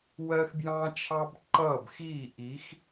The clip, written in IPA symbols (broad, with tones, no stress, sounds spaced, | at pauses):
w ɜ˦ x b j ɑ̃˦ t͡ʃʰ ɑ˦ b ǃ ʌː˦˨ b x iː˦˨ ʔ i˨˦ x